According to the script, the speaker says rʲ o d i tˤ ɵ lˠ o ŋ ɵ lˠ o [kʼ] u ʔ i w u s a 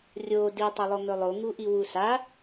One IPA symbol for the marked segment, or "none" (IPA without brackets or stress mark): ŋ